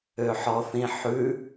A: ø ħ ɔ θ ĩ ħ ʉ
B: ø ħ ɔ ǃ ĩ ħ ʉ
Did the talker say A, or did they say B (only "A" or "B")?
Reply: A